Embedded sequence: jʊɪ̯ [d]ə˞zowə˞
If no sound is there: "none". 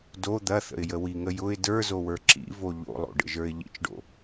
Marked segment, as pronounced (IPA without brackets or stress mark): d